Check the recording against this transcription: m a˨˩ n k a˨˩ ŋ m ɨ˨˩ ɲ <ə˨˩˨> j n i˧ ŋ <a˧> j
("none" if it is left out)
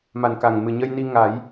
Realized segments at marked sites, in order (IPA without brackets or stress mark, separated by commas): ə˧, a˨˩˦